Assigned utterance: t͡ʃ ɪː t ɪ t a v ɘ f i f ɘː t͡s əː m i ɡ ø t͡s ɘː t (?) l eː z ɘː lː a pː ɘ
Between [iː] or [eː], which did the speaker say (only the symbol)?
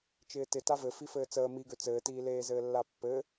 iː